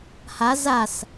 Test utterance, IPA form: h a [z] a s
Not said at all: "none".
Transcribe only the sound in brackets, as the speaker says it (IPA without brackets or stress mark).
z